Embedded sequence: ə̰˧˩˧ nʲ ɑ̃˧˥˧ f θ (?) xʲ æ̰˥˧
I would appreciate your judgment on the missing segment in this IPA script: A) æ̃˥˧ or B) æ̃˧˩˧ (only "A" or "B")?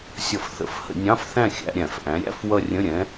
A